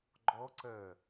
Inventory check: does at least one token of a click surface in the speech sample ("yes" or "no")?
yes